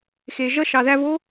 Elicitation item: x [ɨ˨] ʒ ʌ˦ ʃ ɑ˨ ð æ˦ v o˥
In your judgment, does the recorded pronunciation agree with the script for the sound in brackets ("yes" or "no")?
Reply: no